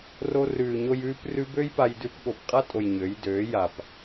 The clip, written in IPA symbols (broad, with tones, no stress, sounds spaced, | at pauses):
r o˧ r ʉː˨ ɲ o˧ j ʉː˧ p r ʉ˧ b ø˦ j p a˧ j d ʉ˧ p ɠ o˨ p qʼ a˦ tʼ o˨ j ɲ ø˨˦ j d øː˨˦ j a˨ p